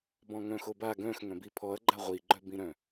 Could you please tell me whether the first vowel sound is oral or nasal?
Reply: nasal